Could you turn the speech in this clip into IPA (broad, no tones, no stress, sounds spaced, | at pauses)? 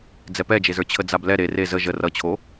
d͡z ɛ p ɛ d͡ʒ e z ə˞ t͡ɕʰ ə d͡z a b l ɛ ɾ e r e z ə ʒ ə r ʌ t͡ɕʰ o